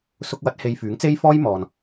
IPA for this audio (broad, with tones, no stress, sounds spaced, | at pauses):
s ʊ˧ k̚ w ɐ˨˥ t̚ h e˧ j f yː˨˥ ŋ t͡s e˥ j f ɔː˥ j m ɔː˨ n